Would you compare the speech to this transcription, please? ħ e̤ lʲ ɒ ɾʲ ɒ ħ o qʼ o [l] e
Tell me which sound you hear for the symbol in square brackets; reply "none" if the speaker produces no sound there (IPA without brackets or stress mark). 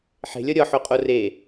r